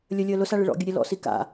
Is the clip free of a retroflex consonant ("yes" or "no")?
no